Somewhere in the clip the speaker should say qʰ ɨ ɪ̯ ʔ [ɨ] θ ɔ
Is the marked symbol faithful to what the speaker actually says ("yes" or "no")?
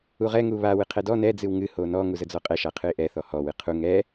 no